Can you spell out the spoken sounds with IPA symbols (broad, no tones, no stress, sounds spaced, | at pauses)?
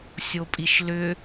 sʲ o pʼ i ʃ l ʏ